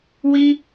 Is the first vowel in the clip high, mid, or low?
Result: high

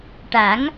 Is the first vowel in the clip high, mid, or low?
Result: low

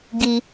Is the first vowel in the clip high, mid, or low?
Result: high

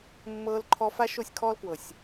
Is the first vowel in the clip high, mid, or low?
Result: mid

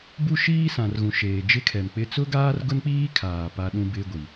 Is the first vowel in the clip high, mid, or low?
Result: high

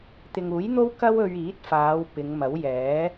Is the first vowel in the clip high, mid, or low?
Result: high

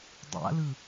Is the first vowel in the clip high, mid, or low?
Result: low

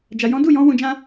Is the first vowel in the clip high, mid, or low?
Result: low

